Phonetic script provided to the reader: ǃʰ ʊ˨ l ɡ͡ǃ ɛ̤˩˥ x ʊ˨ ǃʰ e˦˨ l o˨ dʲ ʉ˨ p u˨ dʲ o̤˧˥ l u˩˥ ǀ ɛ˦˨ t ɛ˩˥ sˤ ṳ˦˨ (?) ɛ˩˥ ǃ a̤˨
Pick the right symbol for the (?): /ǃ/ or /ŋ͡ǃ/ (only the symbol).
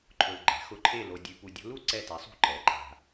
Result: ǃ